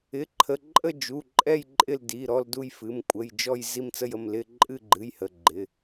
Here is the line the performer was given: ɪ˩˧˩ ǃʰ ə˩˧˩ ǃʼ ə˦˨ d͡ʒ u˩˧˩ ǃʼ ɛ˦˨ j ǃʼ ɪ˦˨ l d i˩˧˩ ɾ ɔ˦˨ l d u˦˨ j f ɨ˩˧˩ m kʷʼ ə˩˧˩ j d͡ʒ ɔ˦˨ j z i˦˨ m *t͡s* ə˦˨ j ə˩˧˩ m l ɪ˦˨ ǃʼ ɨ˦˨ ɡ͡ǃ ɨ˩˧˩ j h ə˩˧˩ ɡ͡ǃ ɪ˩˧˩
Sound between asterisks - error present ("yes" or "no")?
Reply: no